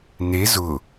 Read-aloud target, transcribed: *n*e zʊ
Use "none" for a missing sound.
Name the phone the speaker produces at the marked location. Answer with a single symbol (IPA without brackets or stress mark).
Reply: n